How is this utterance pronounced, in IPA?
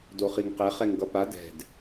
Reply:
d o χ i ŋ q ɛ χ ɛ ŋ ɡ ʌ p a d ɛ̤ d

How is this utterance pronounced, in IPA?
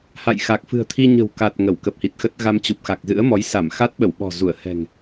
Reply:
h a̰˧˨ j x a˨˩ k̚ f ɨ̤˨˩ ə̯ t̪ʰ i˧ ɲ ə̤˨˩ w k a˨˩ t̚ ŋ ə˧˩ w k ə˨˩ p̚ h i˨˩ t̚ x ə˦˥ t̚ ɣ a˧ m t͡ɕ u˨˩ p̚ x a˨˩ k̚ z ɨ̰˧˥ ə̯ m ɔ˨˦ j s a˧˩ m x a˦˥ t̚ ɓ ə˧˩ w ɓ ɔ̤˨˩ z u˧˩ ə̯ h ɛ̤˨˩ ŋ

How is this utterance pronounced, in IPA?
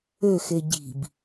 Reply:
ø x e ɟ i̤ b

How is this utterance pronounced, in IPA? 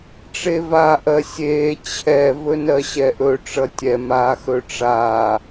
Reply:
ʈ͡ʂ e v aː ʔ ɜ sʲ eː t͡ɕʰ ɛ v ɵ n ɜ ɕ ɛ ʔ ɵ ʈ͡ʂ ʌ tʲ ɛ m aː x ɵ ʈ͡ʂ aː

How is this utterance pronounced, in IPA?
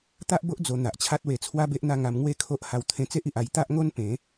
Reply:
t̪ a˦ ʔ b o˦ ʔ d͡z o˧ n̪ a˨ ʔ t͡ɕʰ a˦ t̚ w e˧ t͡sʰ w a˦ b e˦ ʔ n̪ a˥˧ ŋ a˧ m ŋ w e˦ kʰ o˦ ʔ h a˧ w t̪ʰ ẽ˧ t͡s e˦ ʔ i˨ ʔ a˧ j t̪ a˦ ʔ ŋ o˦ n p ẽ˨˦

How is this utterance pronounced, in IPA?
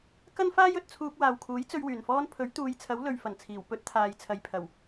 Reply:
k ɐ˥ n f aː˥ j ɵ˨ t̚ t͡sʰ uː˧ k̚ w aː˨ w kʰ uː˨˥ j t͡s ɵ˧ ɥ w yː˨˩ n f ɔː˥ n pʰ ɵ˨˥ ɥ t̪ uː˨˧ j t͡sʰ ɐ˨˥ w l ɵ˨ ɥ f ɐ˨˩ n t͡sʰ iː˨˩ w p ɵ˥ t̚ t̪ʰ aː˨ j t͡sʰ ɐ˨ j pʰ ɐ˨˩ w

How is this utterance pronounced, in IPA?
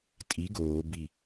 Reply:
tʼ i ɡ oː b i

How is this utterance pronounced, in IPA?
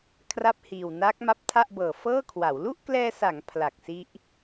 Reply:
kʰ r a˥˩ p̚ h iː˨˩ w n aː˦˥ k̚ m a˦˥ p̚ tʰ a˥˩ ʔ b ɤː˨˩ f ɤː˥˩ kʰ w a˩˦ w l u˥˩ ʔ k l ɛː˧ s a˩˦ ŋ pʰ l a˨˩ k̚ s i˦˥ ʔ

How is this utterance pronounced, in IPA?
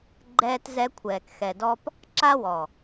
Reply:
ɡ͡ǃ ɛː˦ t z ɛ˦ kʷʰ ɛː˨ k x ɛ˨ d ɔ˦ p | ǁ a˦ w ɔ˨

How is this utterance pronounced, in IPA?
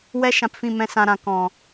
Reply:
w ɛ˦ ʃ ã˨ p f ĩ˦˨ m ɛ̃˦ s ã˧ ɾ ã˨ k ɔ̃˨

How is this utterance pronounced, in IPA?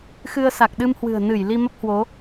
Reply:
x ɨ˧ ə̯ s a˨˩ k̚ ɗ ɨ˧ m h w ɨ̤˨˩ ə̯ n ɨ˧˩ j l i˧ m ə˦˥ p̚ h w o˨˦

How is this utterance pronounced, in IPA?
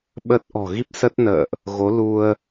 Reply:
ɓ ə˦˥ t̚ ʔ ɔ̤˨˩ ɣ i˦˥ p̚ s ə˦˥ t̚ n ə̰ː˧˨ ʔ | ɣ o˨˦ l u˧ ə̯

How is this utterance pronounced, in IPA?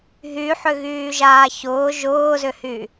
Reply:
ɦ y ħ ʏ ɣ yː ʒ aː ç ʊː ʒ ʊː z ʏ h y

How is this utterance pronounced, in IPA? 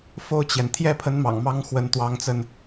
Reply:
f o˥˩ ʊ̯ t͡ɕ j ɛ˩ n t̪ʰ j ɛ˥˩ pʰ ə˧˥ n m ɑ̰˨˩ ŋ m ɑ˥ ŋ x w ə˧˥ n t̪ w ɑ˧˥ ŋ t͡s ə˧ n

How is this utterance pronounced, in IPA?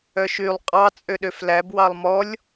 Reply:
œ ʃ y lˠ qʼ ɑ t͡sʼ ø ɗ ø f l æ b w ɑ lˠ m ɔ lʲ

